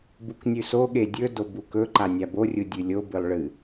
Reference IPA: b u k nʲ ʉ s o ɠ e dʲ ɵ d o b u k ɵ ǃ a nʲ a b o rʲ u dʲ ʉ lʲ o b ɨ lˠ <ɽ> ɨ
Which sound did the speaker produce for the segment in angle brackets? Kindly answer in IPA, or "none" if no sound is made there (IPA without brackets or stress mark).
ɭ